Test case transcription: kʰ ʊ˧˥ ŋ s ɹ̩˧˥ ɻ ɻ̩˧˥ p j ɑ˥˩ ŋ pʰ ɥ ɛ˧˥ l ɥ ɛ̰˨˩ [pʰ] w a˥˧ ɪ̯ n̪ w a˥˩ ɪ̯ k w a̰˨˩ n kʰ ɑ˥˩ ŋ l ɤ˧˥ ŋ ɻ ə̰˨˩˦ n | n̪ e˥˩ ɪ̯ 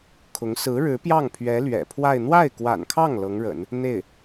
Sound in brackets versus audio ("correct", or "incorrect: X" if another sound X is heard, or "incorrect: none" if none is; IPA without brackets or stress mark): correct